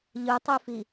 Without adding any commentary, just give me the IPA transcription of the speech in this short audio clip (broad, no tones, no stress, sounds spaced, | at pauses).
ʎ ɯ tˤ y f i